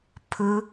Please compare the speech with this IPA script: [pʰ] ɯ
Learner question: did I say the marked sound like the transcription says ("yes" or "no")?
yes